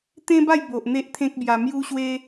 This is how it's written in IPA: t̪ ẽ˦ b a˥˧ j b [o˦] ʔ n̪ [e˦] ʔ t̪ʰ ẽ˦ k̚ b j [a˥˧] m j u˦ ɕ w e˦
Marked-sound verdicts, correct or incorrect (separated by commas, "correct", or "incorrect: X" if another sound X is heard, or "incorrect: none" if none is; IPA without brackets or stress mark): incorrect: o˨, correct, incorrect: a˧